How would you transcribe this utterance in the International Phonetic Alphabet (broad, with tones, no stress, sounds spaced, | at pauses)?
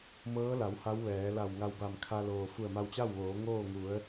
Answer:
m ɤː˧˥ l a˩˧ w h a˧˥ w ʋ ɛː˩˧ l a˧˩ w ŋ a˧ w b a˧˩ m kʰ a˧ l oː˩ f u˧˩ ə̯ m a˧ w t͡ɕ a˥˨ w ʋ oː˩˧ ŋ oː˥˨ ŋ u˩˧ ə̯